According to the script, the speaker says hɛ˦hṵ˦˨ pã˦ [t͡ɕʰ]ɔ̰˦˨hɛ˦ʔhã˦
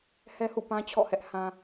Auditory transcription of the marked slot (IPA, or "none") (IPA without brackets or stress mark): t͡ɕʰ